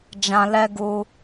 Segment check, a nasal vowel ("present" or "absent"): present